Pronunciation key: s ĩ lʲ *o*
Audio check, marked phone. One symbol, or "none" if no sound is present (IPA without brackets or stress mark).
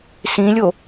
o